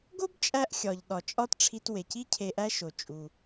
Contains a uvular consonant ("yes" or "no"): no